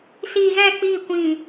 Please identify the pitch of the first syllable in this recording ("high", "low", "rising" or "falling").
low